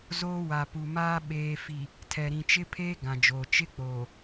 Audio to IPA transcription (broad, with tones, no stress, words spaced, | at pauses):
zoː˦wa˨ pu˨maː˦ ɓeː˨fi˨ | tʰɛ˨ɾĩ˨t͡ʃɪ˦ pʰeː˦ ɡã˨d͡ʒoː˨ t͡ʃɪ˦k͡poː˨